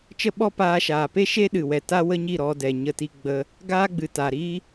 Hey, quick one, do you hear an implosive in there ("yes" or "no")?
yes